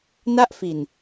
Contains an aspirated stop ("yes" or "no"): no